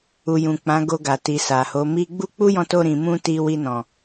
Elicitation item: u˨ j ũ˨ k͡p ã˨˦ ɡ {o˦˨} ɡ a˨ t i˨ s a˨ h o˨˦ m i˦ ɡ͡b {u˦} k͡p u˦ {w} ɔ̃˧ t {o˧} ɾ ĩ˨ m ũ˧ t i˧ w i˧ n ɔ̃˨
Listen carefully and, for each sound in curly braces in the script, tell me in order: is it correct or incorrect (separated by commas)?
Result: incorrect, correct, incorrect, correct